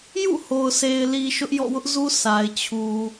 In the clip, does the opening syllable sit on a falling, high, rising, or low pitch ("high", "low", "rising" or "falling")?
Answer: falling